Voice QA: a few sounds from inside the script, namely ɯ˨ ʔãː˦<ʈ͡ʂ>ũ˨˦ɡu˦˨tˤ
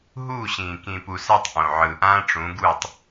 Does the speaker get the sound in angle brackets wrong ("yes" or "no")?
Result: no